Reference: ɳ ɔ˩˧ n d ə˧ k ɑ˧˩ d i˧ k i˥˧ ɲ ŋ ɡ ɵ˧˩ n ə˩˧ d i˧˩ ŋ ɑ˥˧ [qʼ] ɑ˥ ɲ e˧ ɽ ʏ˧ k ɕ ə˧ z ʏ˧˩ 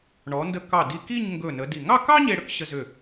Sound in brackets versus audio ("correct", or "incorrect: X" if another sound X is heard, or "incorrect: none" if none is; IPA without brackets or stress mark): incorrect: k